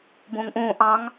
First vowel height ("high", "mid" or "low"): high